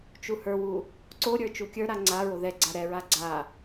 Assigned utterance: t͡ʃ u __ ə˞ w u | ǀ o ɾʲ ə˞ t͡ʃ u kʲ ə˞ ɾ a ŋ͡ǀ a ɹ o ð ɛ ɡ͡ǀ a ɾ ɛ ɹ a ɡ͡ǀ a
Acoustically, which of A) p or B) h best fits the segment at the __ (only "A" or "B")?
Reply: B